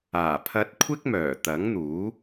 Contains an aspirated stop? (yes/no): yes